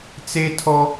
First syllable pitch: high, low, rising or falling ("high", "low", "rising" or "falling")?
high